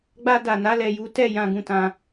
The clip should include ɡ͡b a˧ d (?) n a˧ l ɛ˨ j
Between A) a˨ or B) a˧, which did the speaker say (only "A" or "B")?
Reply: A